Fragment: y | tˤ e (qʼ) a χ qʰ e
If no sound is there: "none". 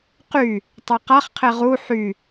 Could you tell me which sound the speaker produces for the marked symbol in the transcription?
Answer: q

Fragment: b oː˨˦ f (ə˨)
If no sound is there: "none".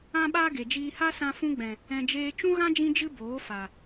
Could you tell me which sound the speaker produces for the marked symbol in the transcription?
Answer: a˨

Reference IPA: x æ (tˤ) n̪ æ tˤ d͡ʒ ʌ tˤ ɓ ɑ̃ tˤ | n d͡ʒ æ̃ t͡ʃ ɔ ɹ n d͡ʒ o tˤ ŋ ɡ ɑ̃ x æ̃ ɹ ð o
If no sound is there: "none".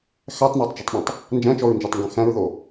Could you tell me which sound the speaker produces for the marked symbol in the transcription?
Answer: tˤ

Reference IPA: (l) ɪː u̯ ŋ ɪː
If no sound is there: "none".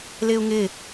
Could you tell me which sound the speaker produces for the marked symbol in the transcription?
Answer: l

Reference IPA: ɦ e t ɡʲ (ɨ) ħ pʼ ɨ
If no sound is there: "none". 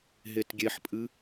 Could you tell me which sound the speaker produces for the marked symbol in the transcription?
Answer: e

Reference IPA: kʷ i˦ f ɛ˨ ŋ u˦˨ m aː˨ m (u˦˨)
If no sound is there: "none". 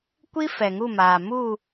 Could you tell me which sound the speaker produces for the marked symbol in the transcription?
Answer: u˦˨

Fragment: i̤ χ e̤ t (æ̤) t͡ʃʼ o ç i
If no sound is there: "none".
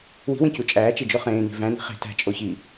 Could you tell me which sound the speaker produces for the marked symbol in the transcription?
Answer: æ̤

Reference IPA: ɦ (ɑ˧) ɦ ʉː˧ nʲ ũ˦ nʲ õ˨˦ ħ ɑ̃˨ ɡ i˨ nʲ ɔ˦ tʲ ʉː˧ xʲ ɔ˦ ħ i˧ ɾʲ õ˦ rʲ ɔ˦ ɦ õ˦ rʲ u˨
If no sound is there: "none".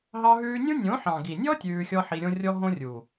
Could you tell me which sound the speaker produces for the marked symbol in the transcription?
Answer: ɑ˧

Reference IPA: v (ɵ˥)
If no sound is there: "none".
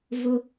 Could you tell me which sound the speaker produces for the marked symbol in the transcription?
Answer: ʊ˥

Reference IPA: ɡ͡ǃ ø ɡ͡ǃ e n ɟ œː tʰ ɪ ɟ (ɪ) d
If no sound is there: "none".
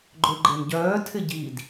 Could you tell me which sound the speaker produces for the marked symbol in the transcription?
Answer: i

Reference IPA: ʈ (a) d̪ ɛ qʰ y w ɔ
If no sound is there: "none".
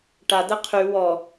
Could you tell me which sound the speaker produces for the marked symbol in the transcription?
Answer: a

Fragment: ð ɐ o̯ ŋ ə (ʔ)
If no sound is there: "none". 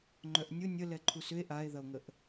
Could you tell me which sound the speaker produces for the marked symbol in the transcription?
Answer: ʔ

